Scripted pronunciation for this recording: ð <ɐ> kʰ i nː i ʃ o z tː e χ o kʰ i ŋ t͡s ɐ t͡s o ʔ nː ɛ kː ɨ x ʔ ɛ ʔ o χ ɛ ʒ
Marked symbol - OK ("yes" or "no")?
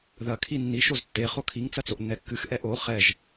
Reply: yes